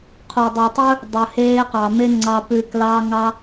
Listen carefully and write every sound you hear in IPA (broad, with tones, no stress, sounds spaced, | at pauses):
qʰ u˨ dˤ ʉ˨ tˤ ɵ˦ | dˤ ɵ˨ h eː˧ q ɑ˨ m e˦ ŋ͡ǀ ɑ˧ p ʉ˨ k l ɑː˧ ŋ ɑ˦